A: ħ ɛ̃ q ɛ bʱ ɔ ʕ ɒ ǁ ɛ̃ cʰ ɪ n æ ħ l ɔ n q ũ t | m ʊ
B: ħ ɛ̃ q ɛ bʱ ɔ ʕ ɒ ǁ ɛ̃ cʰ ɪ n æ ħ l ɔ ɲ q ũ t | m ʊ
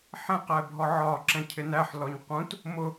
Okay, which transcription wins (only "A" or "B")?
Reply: B